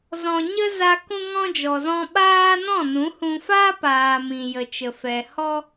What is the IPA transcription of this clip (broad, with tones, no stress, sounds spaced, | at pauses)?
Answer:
z ɔ̃˨ ɲ ə˦ z a˧ k ũ˦ ŋ ɔ̃˦ d͡ʒ ɔ˨ z ɔ̃˧ ɓ aː˦ n ɔ̃˦˨ n ũ˨˦ h ũ˧ f aː˦ p aː˨ m ĩ˨ j ə˨ t͡ʃ ə˨ f ɛ˨ h ɔ˦